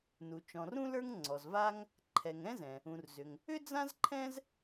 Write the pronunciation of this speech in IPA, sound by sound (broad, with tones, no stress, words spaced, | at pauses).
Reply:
nu˩ t͡ʃɔ̃˩rũ˥lə˞˥ŋ ŋ͡ǀɔ˩zva˥ŋ | ǃʰɛ˩ŋɛ̃˥zɛ̃˩ | ũ˩rzʏ˩ŋ | ʏ˥d͡zã˥zǃʰɛ̃˥z